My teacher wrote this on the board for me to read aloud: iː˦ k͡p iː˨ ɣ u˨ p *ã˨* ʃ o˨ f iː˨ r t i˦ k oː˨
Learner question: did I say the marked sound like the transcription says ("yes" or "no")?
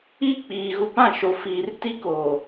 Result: no